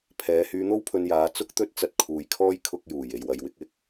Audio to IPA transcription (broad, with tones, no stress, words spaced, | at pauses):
pʰɛː˨˧ hyː˧n̪o˥wpʰɵ˧njaː˨˧ t͡sʊ˧k̚t̪ɵ˧t̚t͡sɐ˨t̚ kʰuː˨jkʰɔː˥j kʰʊ˧k̚juː˨˩j e˨jwɐ˨jwɪ˨˥k̚ɪ˨˥k̚